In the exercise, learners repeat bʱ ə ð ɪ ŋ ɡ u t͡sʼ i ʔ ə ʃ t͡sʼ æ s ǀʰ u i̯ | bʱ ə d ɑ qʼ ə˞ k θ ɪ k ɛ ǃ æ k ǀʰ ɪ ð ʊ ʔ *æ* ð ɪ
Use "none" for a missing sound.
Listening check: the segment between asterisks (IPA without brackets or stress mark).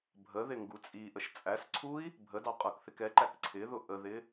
ə